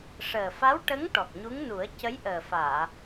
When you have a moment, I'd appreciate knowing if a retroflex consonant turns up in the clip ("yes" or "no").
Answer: yes